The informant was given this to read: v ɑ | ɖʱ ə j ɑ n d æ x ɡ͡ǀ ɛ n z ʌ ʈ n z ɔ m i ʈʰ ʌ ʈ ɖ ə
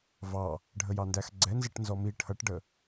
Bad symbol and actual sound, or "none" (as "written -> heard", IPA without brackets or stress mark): none